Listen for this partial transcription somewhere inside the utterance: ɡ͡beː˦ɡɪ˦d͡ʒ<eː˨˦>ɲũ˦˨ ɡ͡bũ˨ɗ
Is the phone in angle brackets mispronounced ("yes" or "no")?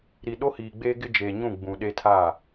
yes